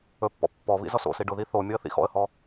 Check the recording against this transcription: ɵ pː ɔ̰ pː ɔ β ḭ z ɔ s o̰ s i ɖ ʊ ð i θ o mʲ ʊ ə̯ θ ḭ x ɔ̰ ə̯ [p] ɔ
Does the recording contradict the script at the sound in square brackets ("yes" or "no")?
yes